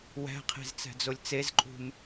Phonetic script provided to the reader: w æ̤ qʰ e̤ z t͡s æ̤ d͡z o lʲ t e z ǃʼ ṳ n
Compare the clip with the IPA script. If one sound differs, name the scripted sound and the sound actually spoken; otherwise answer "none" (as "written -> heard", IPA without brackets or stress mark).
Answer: t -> t͡s